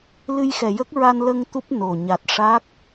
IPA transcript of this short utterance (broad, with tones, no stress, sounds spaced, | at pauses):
l ɨ˧ j x ɛ˨˩ j ə˦˥ k̚ ɹ a˧ n l ə˧ ŋ t̪ u˦˥ p̚ n o˨˩ ɲ a˨˩ t̚ ʂ a˦˥ k̚